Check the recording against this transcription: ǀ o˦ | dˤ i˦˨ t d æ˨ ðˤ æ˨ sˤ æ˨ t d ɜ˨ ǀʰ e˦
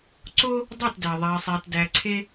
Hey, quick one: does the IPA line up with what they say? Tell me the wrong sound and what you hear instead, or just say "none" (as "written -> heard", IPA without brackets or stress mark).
ɜ˨ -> æ˨